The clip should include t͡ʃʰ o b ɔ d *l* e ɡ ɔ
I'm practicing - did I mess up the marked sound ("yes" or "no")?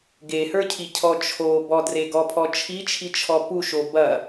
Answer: yes